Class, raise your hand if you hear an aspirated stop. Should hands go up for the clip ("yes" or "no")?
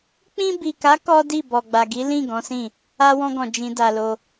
no